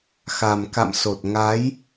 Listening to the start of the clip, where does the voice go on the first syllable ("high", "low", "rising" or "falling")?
low